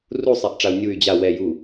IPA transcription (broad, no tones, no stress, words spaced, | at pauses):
rusˤɛʔʈ͡ʂau̯ nʲuy̯ d͡ʑa wɛ ju